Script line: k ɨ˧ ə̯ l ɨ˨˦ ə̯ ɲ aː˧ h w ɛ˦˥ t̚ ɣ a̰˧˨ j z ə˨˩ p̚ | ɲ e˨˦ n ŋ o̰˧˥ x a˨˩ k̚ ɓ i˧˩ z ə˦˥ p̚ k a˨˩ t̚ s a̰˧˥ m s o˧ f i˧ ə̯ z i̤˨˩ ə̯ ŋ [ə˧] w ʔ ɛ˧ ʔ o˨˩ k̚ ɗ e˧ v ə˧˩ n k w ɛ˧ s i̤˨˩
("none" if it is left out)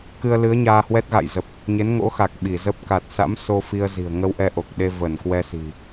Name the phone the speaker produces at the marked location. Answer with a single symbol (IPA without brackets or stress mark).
ə˧